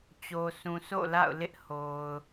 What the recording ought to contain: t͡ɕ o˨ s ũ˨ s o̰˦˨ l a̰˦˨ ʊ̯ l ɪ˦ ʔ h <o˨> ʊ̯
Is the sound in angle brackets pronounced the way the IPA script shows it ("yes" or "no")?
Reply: yes